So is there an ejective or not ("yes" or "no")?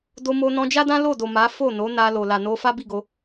no